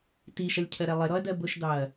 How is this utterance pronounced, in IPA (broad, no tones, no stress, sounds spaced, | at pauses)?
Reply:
t i ʃ ʌ lʲ cʰ ɜ ɾ ɛ lˠ ɪ ɾ ɔ ɐ̯ d ɜ b ʊ ʃ d ɑ ɐ̯